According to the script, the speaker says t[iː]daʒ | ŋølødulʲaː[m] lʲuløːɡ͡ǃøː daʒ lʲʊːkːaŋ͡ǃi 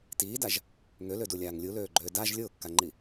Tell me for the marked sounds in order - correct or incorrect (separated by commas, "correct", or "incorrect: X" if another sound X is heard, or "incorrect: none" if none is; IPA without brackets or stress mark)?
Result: correct, incorrect: ŋ